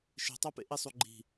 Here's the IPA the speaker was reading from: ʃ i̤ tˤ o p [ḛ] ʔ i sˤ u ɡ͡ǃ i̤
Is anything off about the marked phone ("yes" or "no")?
no